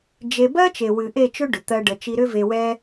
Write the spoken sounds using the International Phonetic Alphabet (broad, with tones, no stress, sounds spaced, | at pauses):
d͡ʒ e˧ b ɜ˦ t͡ʃ e˨ w ɨ˨ ʔ e˦˨ t͡ʃ ʏ˦ ɖ ʏ˨ t̪ ɜ˦ ɖ ə˧ t͡ʃ i˧ ɾ ʏ˦ v e˧ w ɛ˦